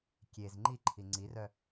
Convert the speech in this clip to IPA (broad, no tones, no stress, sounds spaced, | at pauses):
kʲ e z ŋ͡ǃ i ǃʰ i ŋ͡ǀ i r œ